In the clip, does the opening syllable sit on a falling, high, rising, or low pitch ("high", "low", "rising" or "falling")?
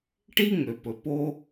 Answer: high